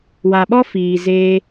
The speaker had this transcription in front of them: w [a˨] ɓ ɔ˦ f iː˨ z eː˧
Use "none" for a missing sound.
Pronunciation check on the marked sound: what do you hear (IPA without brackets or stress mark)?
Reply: a˨